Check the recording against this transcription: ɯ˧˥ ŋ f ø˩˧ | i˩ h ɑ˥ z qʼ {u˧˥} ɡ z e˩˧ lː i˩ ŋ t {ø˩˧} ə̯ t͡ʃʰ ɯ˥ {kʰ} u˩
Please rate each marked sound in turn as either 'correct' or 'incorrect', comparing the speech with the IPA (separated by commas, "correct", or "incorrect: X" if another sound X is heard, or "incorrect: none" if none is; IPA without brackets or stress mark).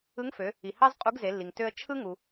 correct, incorrect: ø˧, incorrect: ŋ